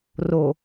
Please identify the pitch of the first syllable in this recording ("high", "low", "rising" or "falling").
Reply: low